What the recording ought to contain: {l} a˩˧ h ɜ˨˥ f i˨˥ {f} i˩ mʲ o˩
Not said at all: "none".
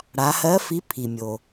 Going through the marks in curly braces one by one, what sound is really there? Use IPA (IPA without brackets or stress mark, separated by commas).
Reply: ɽ, pʰ